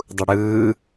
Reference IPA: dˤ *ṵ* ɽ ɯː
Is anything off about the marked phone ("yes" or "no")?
yes